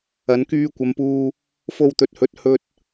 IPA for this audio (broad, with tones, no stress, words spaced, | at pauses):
ɐ˨˧nkyː˧kʷɐ˨˧mpuː˧ | fo˧wt̪ɵ˨t̚hɵ˨˥t̚ hɵ˧t̚